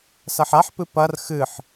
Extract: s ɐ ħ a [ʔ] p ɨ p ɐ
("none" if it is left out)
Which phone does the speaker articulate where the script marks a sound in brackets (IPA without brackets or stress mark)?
ħ